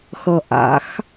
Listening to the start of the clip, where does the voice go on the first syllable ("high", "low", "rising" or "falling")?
low